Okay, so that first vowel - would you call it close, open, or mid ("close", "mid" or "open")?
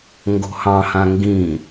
mid